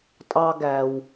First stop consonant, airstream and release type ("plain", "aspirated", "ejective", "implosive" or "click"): ejective